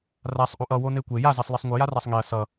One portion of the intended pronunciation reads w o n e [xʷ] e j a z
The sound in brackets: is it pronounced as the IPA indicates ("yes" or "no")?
no